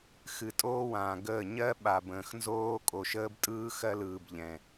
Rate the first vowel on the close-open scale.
close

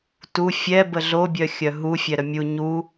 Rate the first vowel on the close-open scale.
close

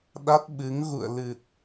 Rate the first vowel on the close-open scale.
open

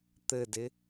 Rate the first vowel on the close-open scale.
mid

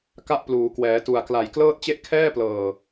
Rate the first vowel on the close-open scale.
open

